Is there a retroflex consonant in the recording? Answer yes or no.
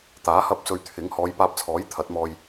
no